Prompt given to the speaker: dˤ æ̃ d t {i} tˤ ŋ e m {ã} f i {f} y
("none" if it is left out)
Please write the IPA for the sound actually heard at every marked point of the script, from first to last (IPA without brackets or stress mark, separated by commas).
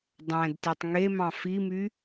i, ɑ̃, m